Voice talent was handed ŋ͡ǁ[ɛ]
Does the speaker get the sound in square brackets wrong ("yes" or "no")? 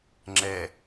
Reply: no